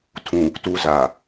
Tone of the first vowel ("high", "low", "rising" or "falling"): low